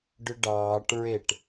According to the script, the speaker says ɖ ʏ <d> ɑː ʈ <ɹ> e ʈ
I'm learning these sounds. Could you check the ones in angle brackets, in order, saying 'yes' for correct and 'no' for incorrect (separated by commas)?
no, yes